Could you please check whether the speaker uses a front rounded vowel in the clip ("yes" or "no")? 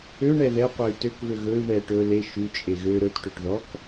yes